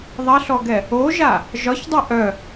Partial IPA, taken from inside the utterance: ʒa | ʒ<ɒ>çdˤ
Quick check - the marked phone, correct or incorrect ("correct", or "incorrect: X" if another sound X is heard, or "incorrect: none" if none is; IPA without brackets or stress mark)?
correct